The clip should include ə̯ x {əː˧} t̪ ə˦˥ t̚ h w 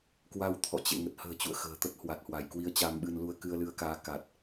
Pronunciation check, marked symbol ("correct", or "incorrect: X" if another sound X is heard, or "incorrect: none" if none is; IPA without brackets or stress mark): incorrect: ə̤ː˨˩